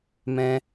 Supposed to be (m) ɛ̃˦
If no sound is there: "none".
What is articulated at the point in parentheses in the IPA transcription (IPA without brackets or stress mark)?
m